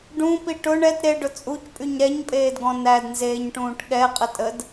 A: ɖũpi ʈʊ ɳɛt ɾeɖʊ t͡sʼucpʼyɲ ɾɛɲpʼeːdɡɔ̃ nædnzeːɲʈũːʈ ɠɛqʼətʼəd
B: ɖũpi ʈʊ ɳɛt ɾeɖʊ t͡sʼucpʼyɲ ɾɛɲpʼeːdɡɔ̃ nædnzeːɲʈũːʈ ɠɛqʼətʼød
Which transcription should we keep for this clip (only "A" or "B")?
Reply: A